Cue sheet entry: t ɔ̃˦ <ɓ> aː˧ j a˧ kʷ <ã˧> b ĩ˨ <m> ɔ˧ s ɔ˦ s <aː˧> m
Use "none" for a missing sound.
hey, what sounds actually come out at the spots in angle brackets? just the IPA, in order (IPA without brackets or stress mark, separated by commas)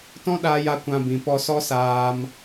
ɗ, ã˧, p, aː˧